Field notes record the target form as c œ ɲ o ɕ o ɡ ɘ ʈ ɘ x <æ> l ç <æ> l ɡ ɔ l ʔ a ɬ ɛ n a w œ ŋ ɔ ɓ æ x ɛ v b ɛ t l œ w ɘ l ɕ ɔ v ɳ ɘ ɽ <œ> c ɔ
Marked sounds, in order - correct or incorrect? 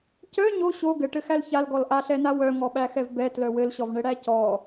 correct, incorrect, incorrect

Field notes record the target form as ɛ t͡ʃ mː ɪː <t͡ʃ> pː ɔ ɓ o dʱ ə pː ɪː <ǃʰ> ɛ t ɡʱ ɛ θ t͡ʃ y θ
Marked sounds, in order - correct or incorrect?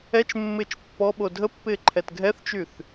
correct, correct

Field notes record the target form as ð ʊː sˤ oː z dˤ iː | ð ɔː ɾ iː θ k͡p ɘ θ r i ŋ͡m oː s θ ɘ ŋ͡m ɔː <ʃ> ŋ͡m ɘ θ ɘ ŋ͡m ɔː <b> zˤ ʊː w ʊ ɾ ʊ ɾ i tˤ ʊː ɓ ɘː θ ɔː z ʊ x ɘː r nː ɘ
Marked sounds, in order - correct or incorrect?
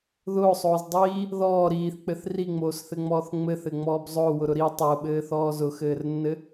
incorrect, correct

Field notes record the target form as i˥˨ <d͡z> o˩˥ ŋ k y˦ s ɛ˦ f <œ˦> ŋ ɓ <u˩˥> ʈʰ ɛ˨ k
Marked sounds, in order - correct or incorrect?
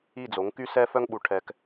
correct, correct, incorrect

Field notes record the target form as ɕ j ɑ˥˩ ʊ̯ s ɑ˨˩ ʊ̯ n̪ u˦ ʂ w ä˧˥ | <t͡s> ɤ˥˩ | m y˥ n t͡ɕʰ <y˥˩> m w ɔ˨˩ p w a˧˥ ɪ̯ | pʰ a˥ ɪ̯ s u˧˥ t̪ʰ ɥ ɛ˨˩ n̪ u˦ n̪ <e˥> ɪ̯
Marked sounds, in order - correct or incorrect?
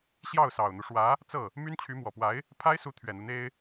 correct, incorrect, correct

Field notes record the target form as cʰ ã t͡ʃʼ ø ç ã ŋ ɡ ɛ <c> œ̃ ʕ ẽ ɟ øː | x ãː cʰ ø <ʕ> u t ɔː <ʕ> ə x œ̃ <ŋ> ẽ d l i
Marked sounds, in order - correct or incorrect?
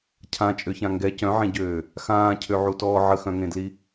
correct, correct, correct, correct

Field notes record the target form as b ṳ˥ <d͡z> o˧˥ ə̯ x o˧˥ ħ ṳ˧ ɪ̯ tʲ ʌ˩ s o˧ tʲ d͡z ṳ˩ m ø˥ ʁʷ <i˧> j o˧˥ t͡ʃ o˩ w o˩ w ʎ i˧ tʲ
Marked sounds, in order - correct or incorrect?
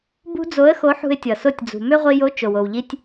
correct, correct

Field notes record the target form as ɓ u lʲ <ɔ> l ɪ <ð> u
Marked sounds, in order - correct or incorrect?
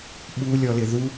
correct, correct

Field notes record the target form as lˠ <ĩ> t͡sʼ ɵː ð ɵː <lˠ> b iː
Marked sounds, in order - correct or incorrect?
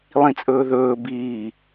correct, incorrect

